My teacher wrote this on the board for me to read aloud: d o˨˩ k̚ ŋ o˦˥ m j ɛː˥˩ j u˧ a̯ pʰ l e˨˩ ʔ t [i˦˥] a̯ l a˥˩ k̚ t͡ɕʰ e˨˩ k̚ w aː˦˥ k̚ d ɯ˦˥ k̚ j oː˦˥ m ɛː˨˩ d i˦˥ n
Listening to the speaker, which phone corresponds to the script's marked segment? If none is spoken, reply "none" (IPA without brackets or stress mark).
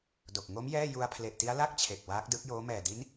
i˦˥